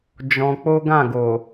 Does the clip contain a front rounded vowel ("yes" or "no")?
no